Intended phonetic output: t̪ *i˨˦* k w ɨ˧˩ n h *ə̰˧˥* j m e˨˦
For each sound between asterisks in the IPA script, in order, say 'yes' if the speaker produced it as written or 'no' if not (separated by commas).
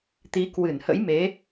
yes, yes